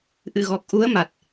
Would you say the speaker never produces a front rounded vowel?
yes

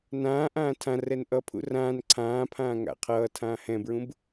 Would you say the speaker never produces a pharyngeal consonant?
yes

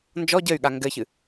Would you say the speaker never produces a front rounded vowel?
no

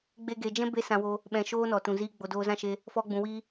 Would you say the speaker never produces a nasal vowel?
no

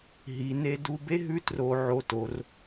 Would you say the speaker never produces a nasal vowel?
yes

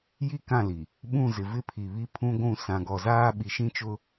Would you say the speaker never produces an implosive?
no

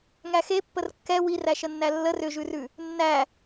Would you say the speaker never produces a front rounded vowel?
no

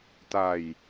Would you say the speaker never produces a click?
yes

